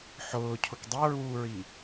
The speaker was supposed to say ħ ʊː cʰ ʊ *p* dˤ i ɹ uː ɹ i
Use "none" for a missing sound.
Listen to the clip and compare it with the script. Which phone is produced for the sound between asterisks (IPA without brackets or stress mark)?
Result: k